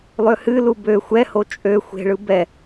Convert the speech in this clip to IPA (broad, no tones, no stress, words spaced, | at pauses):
lˠøhɨlu bø xʷɛho t͡ʃʼø xʷe̤ɭɯ bɛ